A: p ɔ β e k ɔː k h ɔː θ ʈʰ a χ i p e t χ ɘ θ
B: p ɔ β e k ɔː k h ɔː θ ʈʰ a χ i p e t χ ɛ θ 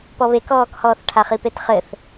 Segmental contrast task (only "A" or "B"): A